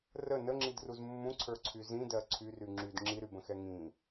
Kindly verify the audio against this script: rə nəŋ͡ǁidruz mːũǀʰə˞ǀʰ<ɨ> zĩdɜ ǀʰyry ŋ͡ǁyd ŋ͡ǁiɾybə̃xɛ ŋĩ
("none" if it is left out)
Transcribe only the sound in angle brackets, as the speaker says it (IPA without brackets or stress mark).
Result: y